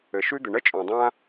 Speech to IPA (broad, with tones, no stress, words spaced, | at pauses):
ɘ˩ʃʉ˥d̪ɘ˩ ɳə˥ t͡ʃʼɔ̃˩dˤã˥